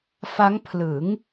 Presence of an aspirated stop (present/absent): present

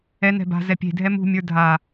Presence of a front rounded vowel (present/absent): absent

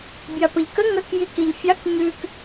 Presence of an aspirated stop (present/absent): absent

